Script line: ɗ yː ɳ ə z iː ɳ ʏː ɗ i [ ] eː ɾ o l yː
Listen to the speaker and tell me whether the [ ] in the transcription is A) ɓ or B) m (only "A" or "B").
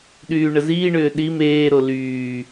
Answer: B